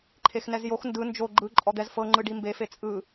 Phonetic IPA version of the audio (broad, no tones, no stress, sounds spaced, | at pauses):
ǃʰ e x n ɛ z j o x n d ɯ n d͡ʒ o ɡ͡ǃ ɯ ǃʼ ɔ d̪ ɛ z f ɤ ŋ͡ǃ ɯ ɖ i m b e f e t͡sʼ ɯ